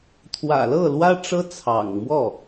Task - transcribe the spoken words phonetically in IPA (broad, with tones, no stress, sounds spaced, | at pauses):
t̪ʰ w ä̰˨˩ l ɤ˥˩ l w ä˥ ʈ͡ʂ ɤ˥ t͡sʰ ɑ̰˨˩ ŋ m w ɔ˥˩